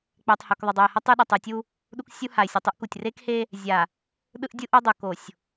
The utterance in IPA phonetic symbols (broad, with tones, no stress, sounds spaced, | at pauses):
k͡p ɛ˨ tˤ h o˨ k ðˤ ʌ˨ dˤ o˨ ɪ̯ h ʌ˦ tˤ ɯ˦ ɗ ʌ˨ tˤ ɯ˨ tʲ u˦ | ɗ u˦ k sʲ u˦ h a˨ ɪ̯ sʲ o˨ tˤ u˦ ʔ k u˨ tʲ r e˦ k h e˦ | zʲ a˨ | ɗ ɯ˦ ʔ dʲ ɯ˦ ʔ o˦ dˤ o˨ k o˨ sʲ